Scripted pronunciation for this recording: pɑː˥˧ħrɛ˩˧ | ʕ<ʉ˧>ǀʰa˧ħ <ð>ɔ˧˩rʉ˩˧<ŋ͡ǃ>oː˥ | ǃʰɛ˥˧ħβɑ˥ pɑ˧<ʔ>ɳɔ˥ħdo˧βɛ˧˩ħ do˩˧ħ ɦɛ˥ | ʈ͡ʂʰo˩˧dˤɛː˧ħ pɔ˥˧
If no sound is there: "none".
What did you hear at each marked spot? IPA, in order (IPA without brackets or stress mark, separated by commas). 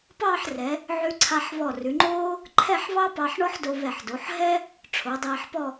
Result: ʉ˧, β, ŋ͡ǃ, ħ